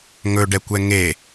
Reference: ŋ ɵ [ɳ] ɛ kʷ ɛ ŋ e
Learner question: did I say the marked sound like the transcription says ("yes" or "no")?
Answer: no